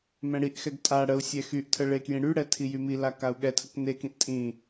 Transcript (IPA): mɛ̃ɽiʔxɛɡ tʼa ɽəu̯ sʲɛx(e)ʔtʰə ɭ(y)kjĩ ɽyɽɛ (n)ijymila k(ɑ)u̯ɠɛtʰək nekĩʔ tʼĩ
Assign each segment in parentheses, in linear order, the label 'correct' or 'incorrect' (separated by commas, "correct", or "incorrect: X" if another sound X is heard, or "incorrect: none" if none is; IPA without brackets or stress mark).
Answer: incorrect: y, incorrect: e, incorrect: tʰ, incorrect: a